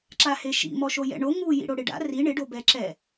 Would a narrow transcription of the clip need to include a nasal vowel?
no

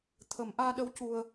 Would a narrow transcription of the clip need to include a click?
no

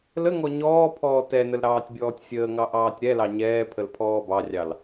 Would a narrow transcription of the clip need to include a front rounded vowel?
no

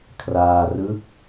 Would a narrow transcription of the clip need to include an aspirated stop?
yes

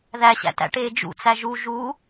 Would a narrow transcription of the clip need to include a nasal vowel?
no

